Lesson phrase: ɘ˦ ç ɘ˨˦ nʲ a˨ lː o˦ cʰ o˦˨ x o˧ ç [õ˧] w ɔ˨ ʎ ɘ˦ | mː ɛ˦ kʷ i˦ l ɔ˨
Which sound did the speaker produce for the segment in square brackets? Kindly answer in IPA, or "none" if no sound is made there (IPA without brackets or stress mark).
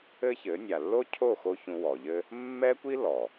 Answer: ũ˧